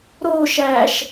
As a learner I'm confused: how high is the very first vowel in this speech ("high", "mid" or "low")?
mid